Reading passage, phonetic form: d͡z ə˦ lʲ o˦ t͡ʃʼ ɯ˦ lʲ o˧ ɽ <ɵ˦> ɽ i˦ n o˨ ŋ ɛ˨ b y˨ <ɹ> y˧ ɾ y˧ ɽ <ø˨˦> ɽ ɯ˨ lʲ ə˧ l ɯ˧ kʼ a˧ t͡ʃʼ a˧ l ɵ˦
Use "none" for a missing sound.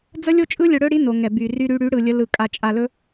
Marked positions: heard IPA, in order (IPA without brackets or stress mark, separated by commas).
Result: ɵ˦, r, y˨˦